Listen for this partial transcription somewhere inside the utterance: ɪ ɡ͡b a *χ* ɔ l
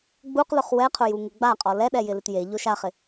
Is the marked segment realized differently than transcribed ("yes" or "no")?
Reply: yes